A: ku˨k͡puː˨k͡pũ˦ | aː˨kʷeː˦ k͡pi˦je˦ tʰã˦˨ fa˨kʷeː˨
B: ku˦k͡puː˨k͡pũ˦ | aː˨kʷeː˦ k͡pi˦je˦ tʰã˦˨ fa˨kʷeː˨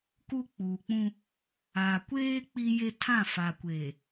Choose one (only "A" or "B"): B